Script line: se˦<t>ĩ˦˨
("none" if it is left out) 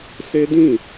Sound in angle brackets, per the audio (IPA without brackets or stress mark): d